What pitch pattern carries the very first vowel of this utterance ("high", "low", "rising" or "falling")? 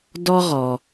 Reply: high